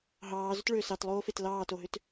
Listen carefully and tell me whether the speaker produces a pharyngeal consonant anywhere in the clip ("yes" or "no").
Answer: no